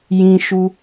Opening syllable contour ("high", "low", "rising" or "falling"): high